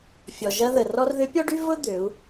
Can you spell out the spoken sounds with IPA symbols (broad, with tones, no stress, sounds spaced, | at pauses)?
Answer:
fʲ ɔ˩ ʒ ɐ˧ ð ə˩ r ɔ˧ r ð ʏ˧˥ pʲ ɔ˥ ɖ y˥ v ʊ˥ d̪ ø˩˧ u̯